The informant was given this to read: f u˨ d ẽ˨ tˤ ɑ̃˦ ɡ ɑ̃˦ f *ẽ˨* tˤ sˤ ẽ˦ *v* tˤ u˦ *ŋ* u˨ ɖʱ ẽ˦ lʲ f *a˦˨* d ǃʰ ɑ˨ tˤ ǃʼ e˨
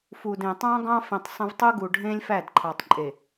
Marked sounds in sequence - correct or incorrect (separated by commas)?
correct, correct, incorrect, incorrect